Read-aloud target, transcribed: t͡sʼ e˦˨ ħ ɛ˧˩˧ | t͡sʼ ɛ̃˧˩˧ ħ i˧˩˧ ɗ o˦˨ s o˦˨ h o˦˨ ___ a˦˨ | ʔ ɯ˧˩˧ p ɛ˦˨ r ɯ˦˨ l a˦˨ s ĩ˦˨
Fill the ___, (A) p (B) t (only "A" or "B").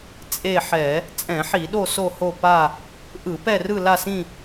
A